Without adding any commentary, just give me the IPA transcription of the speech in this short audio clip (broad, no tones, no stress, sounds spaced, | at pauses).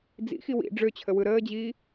d͡z ḭ x i w ḭ ɖ͡ʐ ø t͡ɕʰ ə w ɯ ɾ əː d͡ʑ iː